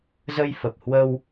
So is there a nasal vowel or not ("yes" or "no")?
no